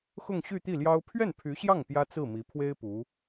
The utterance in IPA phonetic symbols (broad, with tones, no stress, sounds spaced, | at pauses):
x ʊ˥˧ ŋ ɕ y˥˧ t̪ i˥˩ l j ɑ˥ ʊ̯ pʰ ɥ ɛ˥˩ n pʰ y˧˥ ɕ j ɑ˥˩ ŋ p j ä˥ t͡s ɹ̩˥˩ m i˧˥ pʰ w e˥ ɪ̯ p u˧˥